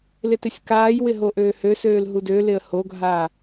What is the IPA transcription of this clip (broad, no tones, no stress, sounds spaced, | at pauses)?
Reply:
l ɪ t ɪ sʲ k aː j w ɪ ɦ o ʔ øː h ø s øː l ɦ u d ø l ɪ ə̯ h o ɡʱ aː